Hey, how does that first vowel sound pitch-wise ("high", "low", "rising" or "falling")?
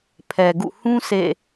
low